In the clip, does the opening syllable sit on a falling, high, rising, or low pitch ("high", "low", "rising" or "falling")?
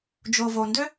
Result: low